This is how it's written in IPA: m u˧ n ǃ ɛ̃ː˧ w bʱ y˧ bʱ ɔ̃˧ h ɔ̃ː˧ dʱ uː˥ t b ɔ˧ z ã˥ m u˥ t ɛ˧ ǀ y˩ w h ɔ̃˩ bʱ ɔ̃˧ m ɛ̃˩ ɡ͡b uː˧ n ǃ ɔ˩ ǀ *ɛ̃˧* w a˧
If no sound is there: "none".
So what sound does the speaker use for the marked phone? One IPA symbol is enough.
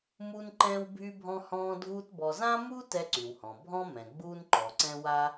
ɛ̃˧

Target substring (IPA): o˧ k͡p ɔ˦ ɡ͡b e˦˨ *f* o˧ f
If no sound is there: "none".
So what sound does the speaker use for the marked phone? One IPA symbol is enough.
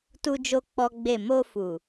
m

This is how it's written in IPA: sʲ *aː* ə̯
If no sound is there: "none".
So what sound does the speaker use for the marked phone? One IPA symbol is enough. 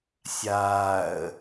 aː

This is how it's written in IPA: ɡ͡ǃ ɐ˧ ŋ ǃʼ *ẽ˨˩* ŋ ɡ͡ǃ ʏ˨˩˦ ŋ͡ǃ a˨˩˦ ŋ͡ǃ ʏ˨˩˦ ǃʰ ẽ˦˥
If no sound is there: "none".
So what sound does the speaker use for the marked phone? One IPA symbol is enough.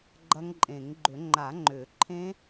ẽ˨˩˦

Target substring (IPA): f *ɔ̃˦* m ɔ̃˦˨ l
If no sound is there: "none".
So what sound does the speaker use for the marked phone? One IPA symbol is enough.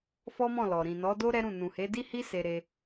ɔ˦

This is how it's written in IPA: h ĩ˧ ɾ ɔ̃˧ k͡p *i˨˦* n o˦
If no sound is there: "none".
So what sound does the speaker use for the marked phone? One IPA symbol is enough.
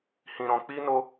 i˦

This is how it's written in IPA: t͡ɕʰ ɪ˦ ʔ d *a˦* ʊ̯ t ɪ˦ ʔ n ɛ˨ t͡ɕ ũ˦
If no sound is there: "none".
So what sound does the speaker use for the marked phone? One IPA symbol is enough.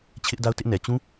a˦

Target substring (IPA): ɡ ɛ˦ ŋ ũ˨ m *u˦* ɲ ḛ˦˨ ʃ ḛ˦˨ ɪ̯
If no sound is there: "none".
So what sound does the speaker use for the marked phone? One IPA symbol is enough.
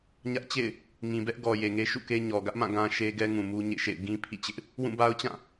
u˦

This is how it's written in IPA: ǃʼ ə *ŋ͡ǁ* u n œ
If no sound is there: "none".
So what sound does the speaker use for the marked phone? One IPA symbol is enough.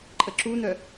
ǁ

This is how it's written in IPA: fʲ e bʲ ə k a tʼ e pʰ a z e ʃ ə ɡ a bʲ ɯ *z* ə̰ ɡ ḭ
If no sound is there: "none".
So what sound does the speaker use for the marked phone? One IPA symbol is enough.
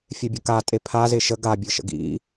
ʃ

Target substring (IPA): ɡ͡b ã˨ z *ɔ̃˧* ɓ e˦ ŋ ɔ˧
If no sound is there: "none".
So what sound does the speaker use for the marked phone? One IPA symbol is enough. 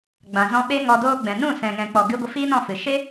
ɔ̃˧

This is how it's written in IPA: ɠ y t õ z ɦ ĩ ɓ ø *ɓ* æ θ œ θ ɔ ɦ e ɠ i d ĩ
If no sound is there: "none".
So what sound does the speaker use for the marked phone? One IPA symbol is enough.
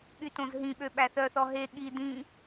ɓ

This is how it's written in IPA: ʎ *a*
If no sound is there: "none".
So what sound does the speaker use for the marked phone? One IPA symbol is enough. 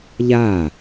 a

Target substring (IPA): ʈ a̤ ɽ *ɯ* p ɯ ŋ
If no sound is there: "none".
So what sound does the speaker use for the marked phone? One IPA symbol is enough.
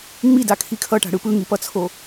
ɯ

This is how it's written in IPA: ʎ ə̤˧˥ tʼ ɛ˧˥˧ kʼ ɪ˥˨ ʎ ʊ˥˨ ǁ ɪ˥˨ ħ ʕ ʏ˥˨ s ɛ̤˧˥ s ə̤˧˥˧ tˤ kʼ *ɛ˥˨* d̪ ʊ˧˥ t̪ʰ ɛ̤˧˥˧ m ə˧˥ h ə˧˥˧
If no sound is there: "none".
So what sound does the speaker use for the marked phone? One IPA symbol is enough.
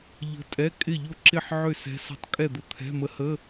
ɛ˥˨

